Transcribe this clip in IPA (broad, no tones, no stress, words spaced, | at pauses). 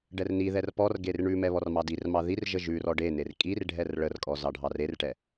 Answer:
ɖɛrniðɛr pɔrɡer ɳʉmɛ βɔrmɑdirmɑ ðirʒə ʒʉr ɔɖener kʼir ɖʱɛrɭərkʼɔ zɑɖʱɑrerʈɛ